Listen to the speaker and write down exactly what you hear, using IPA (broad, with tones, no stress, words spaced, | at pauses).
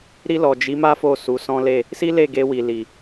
ɾi˧lɔ˨ d͡ʒi˨˦ma˦ fo˦˨su˨˦sɔ̃˦le˦˨ | si˦le˦˨ɡe˧wi˨ li˨